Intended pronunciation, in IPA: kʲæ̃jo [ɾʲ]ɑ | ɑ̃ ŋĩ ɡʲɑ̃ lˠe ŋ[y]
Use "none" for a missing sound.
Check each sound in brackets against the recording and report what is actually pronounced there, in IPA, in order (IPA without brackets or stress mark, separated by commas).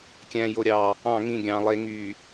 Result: ɾʲ, y